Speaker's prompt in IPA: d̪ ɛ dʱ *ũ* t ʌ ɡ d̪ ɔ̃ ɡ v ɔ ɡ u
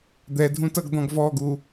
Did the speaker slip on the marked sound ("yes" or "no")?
no